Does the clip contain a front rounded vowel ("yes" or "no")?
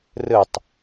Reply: no